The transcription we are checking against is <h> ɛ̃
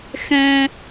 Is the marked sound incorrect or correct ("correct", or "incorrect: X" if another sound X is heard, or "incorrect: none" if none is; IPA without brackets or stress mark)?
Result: incorrect: x